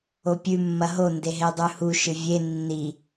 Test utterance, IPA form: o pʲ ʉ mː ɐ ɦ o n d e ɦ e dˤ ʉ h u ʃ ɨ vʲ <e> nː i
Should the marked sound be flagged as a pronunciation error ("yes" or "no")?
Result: no